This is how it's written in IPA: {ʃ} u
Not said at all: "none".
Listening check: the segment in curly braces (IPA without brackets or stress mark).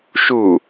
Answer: ʃ